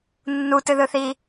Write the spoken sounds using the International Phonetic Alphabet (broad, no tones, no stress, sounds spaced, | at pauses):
nː u t ɨ ð ɯ θ i